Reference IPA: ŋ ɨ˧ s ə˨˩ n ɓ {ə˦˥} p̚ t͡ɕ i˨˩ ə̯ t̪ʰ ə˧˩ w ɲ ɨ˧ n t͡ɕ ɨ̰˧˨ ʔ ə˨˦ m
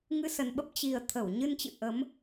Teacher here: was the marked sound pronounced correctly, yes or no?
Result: yes